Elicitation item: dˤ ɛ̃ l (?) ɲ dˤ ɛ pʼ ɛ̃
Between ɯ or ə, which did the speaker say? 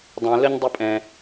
ə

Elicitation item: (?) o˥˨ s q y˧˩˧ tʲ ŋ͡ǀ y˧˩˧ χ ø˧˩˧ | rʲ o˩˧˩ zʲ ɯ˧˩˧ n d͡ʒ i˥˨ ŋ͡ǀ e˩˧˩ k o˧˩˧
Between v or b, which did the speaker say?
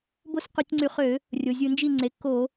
b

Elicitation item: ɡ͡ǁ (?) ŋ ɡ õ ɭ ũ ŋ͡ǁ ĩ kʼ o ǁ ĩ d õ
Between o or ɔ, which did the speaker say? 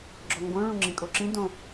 ɔ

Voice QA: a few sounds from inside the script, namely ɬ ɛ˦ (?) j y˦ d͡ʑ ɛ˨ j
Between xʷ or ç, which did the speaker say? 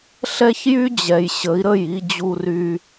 ç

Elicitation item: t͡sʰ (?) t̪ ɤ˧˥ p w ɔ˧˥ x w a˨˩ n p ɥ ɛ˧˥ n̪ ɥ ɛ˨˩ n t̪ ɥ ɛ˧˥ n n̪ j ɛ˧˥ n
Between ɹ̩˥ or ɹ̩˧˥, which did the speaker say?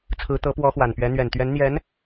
ɹ̩˧˥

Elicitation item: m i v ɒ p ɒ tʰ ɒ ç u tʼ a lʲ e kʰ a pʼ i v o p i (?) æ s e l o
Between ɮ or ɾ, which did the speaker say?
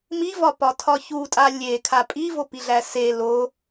ɮ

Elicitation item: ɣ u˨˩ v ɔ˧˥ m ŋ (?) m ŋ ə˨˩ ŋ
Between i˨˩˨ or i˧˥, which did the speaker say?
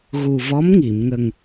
i˨˩˨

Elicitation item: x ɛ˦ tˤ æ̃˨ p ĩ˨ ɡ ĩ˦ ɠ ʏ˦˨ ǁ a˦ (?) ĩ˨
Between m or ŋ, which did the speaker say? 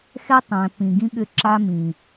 m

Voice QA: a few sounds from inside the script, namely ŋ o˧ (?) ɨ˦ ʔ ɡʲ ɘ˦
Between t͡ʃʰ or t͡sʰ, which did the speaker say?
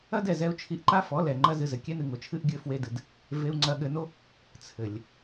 t͡ʃʰ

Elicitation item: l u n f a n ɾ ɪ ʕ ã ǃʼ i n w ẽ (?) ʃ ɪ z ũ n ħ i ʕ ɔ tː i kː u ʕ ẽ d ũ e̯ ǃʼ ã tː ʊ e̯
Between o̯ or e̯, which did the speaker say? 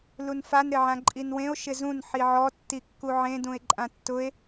o̯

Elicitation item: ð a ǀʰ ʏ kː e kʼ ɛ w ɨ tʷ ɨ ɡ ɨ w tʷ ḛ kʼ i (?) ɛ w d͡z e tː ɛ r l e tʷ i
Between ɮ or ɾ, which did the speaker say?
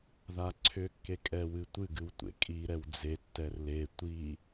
ɾ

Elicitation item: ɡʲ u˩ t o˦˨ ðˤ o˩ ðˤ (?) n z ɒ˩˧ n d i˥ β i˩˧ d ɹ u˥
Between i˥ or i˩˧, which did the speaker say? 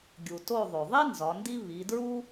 i˥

